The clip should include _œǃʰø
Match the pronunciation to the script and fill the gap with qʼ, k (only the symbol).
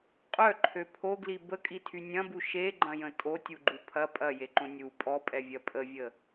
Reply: qʼ